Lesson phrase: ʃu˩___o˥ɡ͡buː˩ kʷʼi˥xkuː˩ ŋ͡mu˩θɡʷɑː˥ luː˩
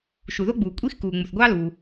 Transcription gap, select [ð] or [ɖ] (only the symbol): ð